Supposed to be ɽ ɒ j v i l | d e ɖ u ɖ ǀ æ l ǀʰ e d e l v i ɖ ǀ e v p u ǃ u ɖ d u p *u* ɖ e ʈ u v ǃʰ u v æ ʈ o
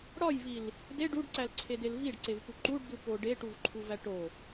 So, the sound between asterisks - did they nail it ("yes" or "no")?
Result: no